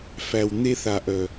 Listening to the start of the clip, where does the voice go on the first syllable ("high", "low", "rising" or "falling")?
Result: low